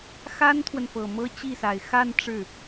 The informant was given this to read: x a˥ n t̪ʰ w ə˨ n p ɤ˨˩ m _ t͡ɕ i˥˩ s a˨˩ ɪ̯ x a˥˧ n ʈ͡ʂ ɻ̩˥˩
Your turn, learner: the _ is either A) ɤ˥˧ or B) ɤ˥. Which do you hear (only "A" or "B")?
B